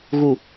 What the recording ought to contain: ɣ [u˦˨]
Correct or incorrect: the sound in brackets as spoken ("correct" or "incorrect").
incorrect